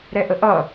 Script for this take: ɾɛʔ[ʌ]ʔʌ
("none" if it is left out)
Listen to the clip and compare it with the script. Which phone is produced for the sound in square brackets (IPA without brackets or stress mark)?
ə